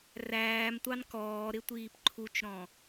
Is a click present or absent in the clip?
present